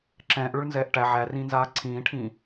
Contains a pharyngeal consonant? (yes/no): yes